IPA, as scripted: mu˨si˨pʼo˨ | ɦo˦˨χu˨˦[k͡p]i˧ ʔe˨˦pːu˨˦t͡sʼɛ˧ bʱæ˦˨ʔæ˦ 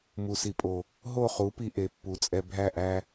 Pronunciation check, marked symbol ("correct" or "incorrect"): incorrect